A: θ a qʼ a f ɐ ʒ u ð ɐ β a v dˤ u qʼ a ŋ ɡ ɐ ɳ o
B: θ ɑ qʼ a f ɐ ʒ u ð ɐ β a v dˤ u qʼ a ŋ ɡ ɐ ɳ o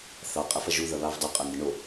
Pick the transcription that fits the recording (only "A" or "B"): B